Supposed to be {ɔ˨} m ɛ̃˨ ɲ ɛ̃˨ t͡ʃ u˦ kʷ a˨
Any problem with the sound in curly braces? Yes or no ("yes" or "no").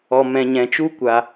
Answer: no